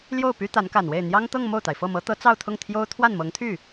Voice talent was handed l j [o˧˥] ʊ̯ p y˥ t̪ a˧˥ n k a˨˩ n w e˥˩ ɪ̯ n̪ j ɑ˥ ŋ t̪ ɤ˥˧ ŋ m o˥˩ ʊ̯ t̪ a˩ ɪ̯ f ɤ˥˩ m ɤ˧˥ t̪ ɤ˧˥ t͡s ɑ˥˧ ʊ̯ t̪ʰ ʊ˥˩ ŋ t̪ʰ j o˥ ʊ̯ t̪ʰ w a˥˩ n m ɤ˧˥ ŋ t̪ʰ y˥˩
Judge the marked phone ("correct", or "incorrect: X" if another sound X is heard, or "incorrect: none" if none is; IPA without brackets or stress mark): incorrect: o˥˩